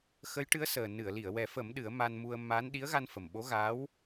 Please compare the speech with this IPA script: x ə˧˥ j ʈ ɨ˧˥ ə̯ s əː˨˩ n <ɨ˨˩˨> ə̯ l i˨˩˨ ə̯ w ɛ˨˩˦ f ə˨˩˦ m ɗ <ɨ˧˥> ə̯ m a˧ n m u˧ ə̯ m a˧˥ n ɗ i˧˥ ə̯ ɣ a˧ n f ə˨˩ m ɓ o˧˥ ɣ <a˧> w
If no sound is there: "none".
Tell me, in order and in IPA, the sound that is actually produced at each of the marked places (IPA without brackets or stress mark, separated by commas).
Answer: ɨ˨˩˨, ɨ˨˩˦, a˧˥